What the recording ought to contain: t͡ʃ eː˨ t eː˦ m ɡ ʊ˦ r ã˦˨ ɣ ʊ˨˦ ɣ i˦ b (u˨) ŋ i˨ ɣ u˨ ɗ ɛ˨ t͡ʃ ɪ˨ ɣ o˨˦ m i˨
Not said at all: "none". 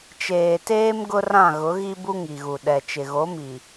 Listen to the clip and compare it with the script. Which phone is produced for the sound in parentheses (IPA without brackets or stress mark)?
u˦